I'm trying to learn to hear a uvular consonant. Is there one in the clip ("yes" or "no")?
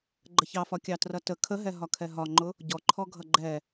no